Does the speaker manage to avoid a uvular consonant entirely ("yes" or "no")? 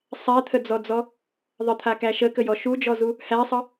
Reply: yes